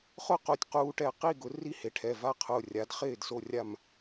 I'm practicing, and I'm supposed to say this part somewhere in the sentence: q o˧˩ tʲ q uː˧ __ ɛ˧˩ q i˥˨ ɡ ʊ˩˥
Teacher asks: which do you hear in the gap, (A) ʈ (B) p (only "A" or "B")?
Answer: A